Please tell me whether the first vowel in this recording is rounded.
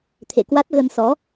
no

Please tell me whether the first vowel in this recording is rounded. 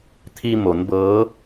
no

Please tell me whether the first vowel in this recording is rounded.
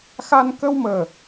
no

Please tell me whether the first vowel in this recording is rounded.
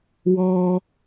yes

